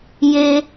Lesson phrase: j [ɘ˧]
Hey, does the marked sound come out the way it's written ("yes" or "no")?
no